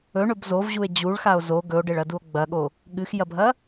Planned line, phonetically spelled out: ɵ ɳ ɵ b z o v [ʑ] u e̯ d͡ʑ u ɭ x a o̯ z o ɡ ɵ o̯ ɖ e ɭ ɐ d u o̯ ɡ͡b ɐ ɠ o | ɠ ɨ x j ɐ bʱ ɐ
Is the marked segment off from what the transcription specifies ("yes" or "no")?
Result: no